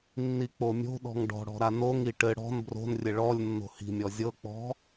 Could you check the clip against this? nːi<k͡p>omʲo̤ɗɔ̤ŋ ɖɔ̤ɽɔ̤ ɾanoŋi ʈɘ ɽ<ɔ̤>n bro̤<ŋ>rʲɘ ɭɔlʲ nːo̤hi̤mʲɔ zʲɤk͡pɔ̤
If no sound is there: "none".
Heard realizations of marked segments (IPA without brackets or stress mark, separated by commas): k͡p, ɔ̤, n